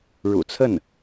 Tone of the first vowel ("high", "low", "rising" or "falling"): low